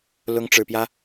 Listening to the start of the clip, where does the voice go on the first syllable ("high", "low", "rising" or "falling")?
rising